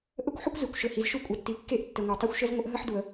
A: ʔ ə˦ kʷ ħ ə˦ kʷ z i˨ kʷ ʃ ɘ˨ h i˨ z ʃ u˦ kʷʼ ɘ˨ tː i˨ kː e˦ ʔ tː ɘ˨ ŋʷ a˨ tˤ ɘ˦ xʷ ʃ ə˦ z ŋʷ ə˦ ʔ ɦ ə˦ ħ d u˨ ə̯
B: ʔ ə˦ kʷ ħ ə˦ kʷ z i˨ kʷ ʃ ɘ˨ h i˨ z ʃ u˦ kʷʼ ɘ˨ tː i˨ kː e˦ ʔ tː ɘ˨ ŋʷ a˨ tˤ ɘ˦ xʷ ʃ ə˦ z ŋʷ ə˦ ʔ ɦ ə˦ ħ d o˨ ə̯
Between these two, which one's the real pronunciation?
A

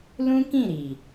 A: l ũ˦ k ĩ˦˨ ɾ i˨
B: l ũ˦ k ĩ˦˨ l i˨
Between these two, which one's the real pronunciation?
A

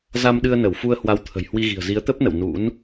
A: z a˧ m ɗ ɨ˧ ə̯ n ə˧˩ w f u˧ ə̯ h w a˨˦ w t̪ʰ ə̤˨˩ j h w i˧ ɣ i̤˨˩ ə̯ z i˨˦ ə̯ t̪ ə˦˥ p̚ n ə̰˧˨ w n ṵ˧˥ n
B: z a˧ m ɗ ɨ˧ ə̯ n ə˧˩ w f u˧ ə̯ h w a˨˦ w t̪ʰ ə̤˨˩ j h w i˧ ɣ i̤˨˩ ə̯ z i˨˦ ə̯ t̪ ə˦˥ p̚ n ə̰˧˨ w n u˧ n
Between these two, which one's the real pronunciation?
A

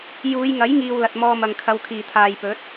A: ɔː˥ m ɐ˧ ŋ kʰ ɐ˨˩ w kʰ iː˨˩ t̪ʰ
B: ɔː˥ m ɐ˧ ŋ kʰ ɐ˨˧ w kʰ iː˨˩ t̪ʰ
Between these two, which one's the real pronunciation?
B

